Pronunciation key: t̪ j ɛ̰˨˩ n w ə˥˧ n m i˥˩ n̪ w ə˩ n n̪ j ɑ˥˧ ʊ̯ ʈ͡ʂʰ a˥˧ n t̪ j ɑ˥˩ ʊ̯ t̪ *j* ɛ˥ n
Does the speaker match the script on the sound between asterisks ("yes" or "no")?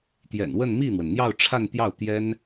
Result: yes